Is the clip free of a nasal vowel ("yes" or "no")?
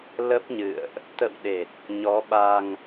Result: yes